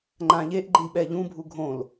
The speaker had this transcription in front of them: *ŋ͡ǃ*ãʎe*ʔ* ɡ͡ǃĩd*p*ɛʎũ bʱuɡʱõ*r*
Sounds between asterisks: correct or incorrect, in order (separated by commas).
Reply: correct, correct, incorrect, incorrect